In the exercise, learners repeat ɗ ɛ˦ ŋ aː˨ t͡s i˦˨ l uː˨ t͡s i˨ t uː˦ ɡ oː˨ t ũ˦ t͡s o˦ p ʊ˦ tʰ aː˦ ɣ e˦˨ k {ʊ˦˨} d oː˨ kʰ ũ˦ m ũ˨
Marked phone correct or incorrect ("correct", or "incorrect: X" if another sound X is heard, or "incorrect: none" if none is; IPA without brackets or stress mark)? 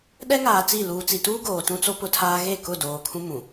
correct